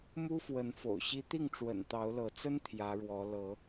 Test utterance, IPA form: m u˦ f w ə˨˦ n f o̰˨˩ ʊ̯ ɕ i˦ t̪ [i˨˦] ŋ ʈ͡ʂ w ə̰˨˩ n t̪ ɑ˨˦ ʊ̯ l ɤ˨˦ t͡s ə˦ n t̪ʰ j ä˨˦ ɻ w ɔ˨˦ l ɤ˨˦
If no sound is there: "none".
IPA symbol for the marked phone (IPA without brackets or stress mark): i˥˨